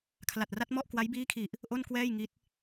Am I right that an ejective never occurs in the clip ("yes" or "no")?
yes